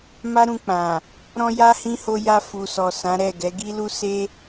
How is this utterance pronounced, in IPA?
m a˦ ɾ ũ˧ k͡p ã˨ | ɾ ɔ̃˦ j a˦ h ĩ˦ h o˧ j a˧ f u˨ s ɔ˨ s ã˨˦ ɾ ɛ˦˨ ɡ ɛ˨˦ ɡ i˦ l u˦ s e˦

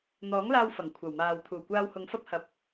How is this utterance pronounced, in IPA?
n̪ ɔː˨˥ ŋ l aː˧ w f ɐ˨˩ ŋ kʷʰ ɐ˨˩ w m aː˨ w t̪ʰ uː˨˩ kʷ aː˧ w h ʊ˨˧ ŋ f ɐ˧ p̚ h ɐ˨ p̚

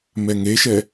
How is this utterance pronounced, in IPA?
m ɛ ŋ e ʃ ɛ

